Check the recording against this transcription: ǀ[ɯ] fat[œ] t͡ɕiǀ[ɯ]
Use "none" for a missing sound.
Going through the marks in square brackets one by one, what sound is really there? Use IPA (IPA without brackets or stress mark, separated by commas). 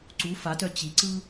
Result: u, œ, ɯ